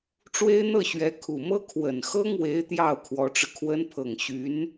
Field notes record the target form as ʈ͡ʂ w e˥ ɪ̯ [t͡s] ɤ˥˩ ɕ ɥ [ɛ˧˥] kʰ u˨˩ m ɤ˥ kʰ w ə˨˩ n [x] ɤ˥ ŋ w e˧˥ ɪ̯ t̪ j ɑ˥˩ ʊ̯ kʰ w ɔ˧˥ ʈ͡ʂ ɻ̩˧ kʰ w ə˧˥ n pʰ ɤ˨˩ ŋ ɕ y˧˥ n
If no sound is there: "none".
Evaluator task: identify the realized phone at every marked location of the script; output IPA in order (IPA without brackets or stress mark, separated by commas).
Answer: n̪, ɛ˧˥, x